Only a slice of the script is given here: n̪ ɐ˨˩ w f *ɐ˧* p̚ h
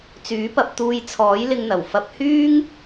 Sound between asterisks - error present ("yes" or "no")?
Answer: no